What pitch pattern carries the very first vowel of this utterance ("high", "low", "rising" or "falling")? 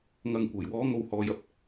low